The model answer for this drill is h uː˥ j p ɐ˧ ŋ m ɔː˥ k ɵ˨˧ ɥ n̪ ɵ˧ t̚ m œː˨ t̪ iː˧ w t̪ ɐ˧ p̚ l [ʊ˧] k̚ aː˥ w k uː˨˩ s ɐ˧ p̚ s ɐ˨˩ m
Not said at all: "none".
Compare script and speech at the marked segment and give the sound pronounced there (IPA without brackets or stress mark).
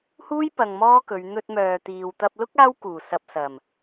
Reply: ʊ˥